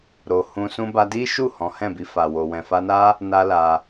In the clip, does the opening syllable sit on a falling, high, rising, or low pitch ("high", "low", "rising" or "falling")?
low